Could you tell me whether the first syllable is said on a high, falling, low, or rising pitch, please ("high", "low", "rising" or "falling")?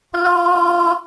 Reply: high